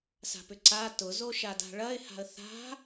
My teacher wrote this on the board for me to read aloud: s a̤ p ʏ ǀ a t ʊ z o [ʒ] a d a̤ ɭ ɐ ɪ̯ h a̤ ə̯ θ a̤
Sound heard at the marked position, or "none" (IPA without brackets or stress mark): ʃ